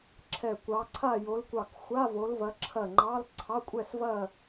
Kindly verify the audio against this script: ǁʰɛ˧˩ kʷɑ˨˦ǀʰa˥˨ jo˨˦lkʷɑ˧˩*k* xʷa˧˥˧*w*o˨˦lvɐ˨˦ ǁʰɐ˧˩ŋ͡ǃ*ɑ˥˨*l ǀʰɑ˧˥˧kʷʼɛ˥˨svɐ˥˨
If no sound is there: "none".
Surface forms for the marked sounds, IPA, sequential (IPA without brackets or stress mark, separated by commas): k, v, ɑ˧˥˧